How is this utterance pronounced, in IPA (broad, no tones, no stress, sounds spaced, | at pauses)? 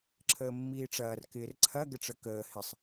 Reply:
ǁʰ əː mː iː ʈ͡ʂ ɐː r k ɪː r ǀʰ ɐ ɡ ə ʈ͡ʂ ə k əː h ɪ sˤ